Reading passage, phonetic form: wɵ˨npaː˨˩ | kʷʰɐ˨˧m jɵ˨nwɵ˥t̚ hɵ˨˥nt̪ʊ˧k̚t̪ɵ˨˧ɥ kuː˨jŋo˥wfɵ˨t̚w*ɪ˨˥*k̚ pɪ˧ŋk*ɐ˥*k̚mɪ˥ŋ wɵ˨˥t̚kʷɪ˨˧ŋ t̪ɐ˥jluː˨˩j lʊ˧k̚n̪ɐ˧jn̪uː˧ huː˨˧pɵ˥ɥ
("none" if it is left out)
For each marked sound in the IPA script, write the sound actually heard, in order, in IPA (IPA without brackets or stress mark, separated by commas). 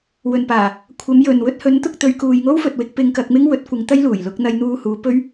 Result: ɪ˧, ɐ˧